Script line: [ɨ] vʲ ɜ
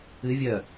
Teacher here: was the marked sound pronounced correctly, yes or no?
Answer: yes